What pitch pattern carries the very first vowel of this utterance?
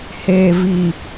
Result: low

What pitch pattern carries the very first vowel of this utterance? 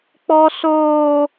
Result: high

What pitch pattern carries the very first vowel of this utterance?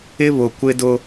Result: high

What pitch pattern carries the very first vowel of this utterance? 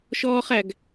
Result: high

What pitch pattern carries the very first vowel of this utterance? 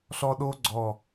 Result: high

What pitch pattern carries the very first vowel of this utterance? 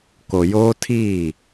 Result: low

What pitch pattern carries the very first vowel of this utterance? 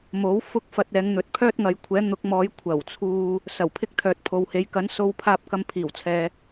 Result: rising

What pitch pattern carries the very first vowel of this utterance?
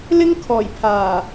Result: high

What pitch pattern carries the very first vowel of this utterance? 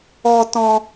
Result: high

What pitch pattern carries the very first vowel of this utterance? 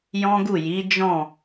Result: high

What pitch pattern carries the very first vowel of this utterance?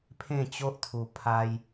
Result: falling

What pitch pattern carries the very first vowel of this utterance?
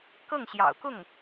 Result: falling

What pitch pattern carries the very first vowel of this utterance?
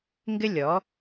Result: high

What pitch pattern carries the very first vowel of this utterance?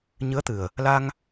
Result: rising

